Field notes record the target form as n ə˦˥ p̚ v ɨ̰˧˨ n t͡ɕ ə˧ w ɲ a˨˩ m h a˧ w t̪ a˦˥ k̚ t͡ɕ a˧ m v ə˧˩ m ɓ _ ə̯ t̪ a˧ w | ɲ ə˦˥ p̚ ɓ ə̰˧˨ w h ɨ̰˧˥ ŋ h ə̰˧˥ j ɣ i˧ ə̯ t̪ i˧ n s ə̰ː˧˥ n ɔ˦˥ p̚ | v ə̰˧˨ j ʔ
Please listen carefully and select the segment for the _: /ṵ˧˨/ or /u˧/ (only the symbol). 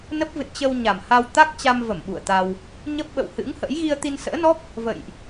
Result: ṵ˧˨